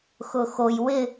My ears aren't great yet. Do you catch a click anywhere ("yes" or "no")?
no